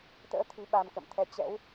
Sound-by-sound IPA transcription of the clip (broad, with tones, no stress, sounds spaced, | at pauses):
t̪ ə̰ː˧˥ t̪ʰ i˨˦ ɓ a˧ m k ə̰˧˨ m t̪ʰ ɛ˧ t͡ɕ ɛ̰˧˥ w